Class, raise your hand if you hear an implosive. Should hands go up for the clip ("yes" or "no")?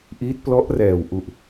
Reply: no